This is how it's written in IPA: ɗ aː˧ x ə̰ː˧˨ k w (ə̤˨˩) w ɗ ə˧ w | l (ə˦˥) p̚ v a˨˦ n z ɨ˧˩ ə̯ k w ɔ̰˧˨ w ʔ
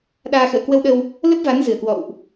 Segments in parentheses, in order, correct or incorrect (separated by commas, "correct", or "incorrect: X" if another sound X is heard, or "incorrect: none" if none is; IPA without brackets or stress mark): incorrect: ə˧, correct